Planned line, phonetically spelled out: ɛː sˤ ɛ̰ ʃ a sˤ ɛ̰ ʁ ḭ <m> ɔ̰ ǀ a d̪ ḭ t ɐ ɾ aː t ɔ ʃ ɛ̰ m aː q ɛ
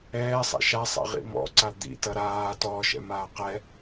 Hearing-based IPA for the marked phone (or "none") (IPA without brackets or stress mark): m